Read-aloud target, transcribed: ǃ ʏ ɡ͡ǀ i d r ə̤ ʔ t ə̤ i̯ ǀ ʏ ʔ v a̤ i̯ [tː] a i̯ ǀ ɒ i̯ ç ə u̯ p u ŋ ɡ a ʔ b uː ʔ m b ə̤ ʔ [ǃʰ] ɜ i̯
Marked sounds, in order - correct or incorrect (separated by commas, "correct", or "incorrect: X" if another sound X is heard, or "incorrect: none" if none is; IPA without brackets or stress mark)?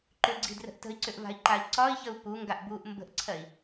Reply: incorrect: ǃ, incorrect: ǀʰ